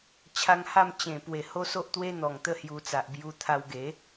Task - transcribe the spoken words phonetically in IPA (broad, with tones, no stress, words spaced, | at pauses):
t͡ɕʰa˧ŋha˥˧m t͡ɕẽ˨˩ pwe˨˩ho˦so˦ʔt̪we˦ n̪ɔ˨˩ŋt̪ə˦ hju˧t͡sa˨ʔ bju˧t̪ʰa˧wɡe˨˦